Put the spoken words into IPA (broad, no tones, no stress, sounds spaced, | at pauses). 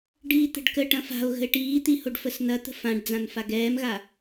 ɖ iː t̪ ə̤ ɖ k ə ʈ ɐ̃ f a̤ o̯ ɣ ə̤ e̯ ʈ iː t̪ i h o ɖ f ə s n ɐ t̪ ə̤ f ã ɖ d͡z ã n f a ɡ ɛː m ɣ a